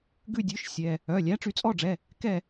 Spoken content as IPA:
ɡ ʉ˦˨ dʲ ʉ˨˥ ʃ sʲ ɛ˩˧˩ | œ˩˧˩ lʲ æ˨˥ ʈ͡ʂ y˩˧ t͡sʼ ɔ˦˨ ɖ͡ʐ ɛ˩˧˩ | k ɛ˦˨

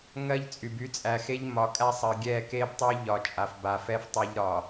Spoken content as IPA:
ŋ ɜ˦ ʎ t͡sʼ y˨ b y˦ t͡sʼ æ˨ x e˦ ʎ m ɒ˨˦ kʼ æ˦ sˤ ɜ˨ ɡʲ ɛ˦˨ k e˦ b tˤ y˦ ʎ ɒ˨ t͡ʃʼ a˨ f b a˨ f ɛ˦ f tˤ a˦ ʎ ɾ ɒ˨

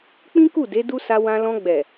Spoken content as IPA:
k͡p ĩ˦ k u˦˨ d e˨˦ d u˦ s a˧ w ã˧ l ɔ̃˧ ɡ͡b ɛ˨

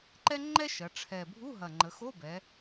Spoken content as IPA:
ǃ ɛ˥ ŋ͡ǃ ɛ˥ ʃ ɐ˩˧ ʈ͡ʂʰ ɛ˨˩ bʱ u˧˥˧ ɦ ɐ˨˩ ŋ͡ǃ ə˩˧ x o˧˥˧ b ɛ˩˧

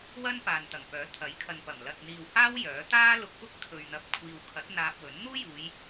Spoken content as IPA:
w ɐ˥ n p aː˨ n t̪ ɐ˨˩ ŋ p œː˨˥ t̪ʰ ɐ˨˥ j kʰ ɐ˨ n p ɐ˨˩ m l ɐ˨ t̚ n̪ iː˨ w h aː˥ w j œː˨˥ t̪ aː˥ l ʊ˧ k̚ p ʊ˥ k̚ t̪ʰ ɵ˨ ɥ n̪ ɐ˨ p̚ kʷʰ iː˨ w kʰ ɐ˨˥ t̚ n̪ aː˧ p̚ w ɵ˨˥ n n̪ uː˥ j uː˨˧ j

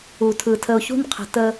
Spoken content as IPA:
u˨ tʰ ɯ˨ tʰ ə˨ ʊ̯ ç ṳ˦ n qʰ ə̤˨ t ə˦

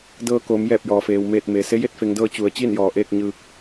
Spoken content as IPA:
d ɤː˧ k oː˩˧ m j ɛː˧˩ p̚ j ɔː˩ f eː˩ w m eː˧˩ t̚ m e˩ s e˧˥ j e˥˨ t̚ f e˩˧ ŋ d ɤː˧ t͡ɕ u˩˧ ə̯ t͡ɕ i˥˨ n j ɔː˩ ʔ eː˥˨ k̚ ɲ ɯː˧ k̚

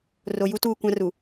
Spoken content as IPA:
r o˨ j u˦ t uː˦˨ kʷ ã˦ r u˨

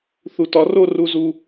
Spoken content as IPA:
θ u˩˧ t ɒ˩˧ r o˥˧ r u˧ z u˧

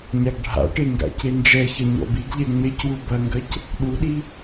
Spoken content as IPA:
ɲ a ɡ ɖʱ a̰ ʈ e ŋ ɡ a̰ c e n d͡ʒ ɛ ç ɐ ɲ ɔ̰ b i ɡ ʎ ɛ ŋ͡m e c w u b ɐ ŋ ɡ ɐ c | ɗ u ɗ i

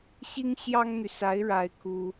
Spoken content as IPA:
ɕ i˥ ŋ ɕ j ɑ˥ ŋ n̪ y˨ s a˧˥ ɪ̯ ɻ a˥ ɪ̯ kʰ u˥

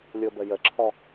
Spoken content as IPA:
lʲ o b ə j ə ǁʰ ɔ

